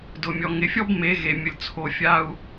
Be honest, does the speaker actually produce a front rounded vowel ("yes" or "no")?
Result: no